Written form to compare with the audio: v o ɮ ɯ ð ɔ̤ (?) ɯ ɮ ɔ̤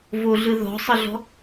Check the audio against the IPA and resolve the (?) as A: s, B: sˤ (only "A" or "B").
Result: B